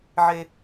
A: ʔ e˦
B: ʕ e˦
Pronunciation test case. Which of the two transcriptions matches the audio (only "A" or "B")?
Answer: B